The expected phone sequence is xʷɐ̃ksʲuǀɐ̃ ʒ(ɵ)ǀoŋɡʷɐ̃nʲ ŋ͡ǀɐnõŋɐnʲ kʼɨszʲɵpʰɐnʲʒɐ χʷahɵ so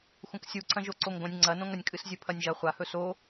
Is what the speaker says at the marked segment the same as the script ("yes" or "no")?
no